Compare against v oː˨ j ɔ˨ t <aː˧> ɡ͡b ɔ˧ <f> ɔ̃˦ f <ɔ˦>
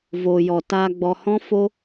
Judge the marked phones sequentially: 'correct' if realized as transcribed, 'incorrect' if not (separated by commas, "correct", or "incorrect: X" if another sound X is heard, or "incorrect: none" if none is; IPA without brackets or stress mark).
correct, incorrect: h, incorrect: o˦